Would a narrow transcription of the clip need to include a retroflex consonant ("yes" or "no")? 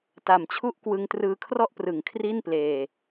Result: no